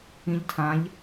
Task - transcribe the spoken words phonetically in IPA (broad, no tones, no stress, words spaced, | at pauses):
ĩʎtʰãʎ